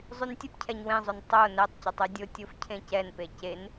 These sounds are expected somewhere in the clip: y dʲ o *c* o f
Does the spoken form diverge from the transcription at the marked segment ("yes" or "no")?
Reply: yes